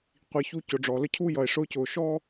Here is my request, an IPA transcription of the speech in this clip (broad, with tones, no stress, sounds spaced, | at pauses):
qʷ i˨ ç u˦ c ʊ˨ ɖ͡ʐ ɔ˨ l ə˥ cʰ u˥ j ʌ˩ e̯ ʂ ʊː˦ c ʊː˨ ʃ ɔː˥